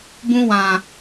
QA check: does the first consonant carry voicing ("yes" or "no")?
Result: yes